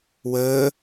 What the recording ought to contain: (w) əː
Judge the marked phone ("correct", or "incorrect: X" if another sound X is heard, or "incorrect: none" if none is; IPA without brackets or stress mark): correct